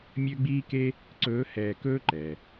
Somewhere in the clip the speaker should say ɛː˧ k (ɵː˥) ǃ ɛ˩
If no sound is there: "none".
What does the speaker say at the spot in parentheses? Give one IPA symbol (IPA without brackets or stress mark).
ɵː˥